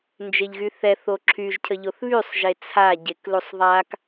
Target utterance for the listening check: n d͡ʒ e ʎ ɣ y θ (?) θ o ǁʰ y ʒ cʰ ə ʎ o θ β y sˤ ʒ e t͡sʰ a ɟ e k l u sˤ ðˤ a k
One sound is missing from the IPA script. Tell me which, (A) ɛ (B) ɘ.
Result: A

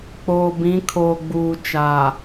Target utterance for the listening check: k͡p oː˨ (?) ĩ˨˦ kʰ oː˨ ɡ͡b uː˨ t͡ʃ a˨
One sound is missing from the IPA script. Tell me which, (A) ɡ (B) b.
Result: B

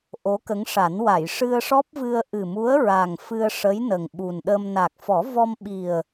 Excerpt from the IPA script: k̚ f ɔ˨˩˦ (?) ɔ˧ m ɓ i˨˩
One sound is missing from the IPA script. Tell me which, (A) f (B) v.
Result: B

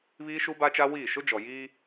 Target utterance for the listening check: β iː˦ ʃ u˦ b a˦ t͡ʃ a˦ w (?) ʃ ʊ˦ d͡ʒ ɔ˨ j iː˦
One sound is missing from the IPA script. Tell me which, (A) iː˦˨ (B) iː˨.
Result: A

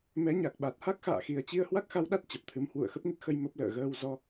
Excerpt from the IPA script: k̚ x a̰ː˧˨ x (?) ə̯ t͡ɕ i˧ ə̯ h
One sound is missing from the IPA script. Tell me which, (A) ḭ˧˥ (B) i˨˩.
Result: B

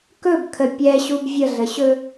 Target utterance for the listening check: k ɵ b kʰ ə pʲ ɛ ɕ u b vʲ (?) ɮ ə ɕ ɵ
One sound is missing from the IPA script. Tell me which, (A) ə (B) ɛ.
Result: A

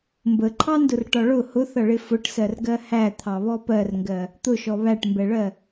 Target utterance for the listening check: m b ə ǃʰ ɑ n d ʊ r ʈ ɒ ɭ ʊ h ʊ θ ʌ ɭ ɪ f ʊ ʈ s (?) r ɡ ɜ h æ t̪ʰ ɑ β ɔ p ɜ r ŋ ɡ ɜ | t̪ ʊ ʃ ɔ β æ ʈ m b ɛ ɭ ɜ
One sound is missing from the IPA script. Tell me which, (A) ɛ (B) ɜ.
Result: B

